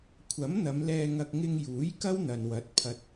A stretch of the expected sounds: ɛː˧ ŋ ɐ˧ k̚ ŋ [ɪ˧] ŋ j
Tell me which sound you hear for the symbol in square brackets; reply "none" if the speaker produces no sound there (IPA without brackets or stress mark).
ɪ˧